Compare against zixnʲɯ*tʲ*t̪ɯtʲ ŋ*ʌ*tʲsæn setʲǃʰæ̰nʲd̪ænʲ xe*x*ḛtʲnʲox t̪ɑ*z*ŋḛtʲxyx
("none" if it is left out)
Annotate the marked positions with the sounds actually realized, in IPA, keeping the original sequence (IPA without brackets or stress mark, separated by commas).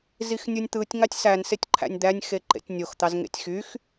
nʲ, ɑ, ǃ, z